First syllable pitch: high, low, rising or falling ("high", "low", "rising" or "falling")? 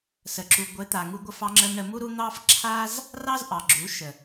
low